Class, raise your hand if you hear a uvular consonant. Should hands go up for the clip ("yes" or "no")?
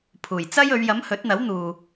no